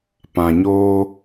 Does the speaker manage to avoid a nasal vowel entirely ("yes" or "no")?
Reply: no